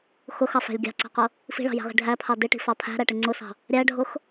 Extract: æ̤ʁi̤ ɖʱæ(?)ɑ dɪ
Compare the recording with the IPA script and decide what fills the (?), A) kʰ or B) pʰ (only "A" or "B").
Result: B